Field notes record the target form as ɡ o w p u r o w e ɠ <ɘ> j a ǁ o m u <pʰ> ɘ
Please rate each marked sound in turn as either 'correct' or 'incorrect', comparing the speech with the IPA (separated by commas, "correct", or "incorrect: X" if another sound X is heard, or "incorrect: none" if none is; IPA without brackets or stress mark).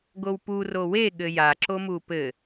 correct, incorrect: p